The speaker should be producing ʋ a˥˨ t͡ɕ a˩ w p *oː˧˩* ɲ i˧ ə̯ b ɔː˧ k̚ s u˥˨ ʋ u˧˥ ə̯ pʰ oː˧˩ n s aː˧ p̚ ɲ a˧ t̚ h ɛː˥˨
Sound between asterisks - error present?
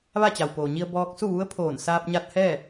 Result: yes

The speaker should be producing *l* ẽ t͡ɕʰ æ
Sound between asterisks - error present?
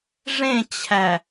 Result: yes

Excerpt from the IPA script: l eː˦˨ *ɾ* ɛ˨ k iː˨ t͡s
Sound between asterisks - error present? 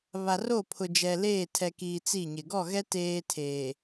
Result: yes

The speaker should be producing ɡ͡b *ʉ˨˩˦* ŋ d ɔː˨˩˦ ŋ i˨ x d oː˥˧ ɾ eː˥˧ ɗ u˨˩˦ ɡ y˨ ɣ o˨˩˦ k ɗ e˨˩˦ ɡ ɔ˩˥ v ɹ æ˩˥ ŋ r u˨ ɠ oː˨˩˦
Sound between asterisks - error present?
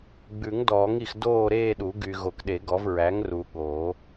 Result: no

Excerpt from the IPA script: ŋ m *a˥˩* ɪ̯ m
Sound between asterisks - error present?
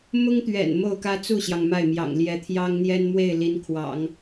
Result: no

